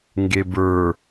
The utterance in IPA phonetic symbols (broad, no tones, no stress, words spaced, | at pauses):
ŋɡebə˞